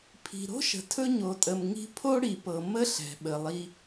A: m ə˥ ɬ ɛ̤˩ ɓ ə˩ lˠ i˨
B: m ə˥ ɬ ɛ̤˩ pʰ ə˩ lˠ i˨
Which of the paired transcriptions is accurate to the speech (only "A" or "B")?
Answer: A